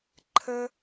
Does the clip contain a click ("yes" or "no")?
yes